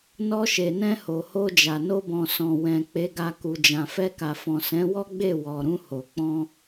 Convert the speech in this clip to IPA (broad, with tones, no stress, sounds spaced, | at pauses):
n ɔ˧ ʃ e˨ n ɛ̃˧ h o˨ h o˧ d͡ʒ a˨ n o˧ b ɔ̃˨ s ɔ̃˨ w ɛ̃˨ k͡p e˨˦ ɡ a˧ k u˨ d͡ʒ ã˨ f ɛ˧ k a˨ f ɔ̃˨ s ɛ̃˨˦ w ɔ˦ ɡ͡b e˦˨ w ɔ˨ ɾ ũ˧ h o˨ k͡p ɔ̃˧